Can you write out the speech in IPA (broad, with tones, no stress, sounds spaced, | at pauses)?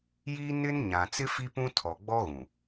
j i˦ n ɪ˦ n ɲ ã˨ t͡s ɪ˦ f i˦ p ũ˦ tʰ ɔ˨ ɡ͡b ɔ˦ ɣ ũ˨